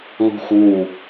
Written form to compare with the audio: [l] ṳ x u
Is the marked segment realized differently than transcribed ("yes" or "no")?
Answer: no